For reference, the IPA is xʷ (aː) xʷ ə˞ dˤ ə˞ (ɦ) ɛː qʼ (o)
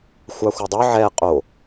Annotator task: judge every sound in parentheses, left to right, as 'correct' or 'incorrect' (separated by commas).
incorrect, incorrect, correct